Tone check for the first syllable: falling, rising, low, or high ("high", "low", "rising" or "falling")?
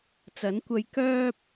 rising